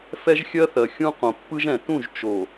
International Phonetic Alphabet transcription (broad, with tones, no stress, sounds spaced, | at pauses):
f ɛ˦ ʒ xʲ ɜ˦ θ ɜ˨ xʲ ũ˦ q õ˨ pː ɯ˦ ʒ ɛ̃˨ t ũ˦˨ ʒ t͡ʃ o˨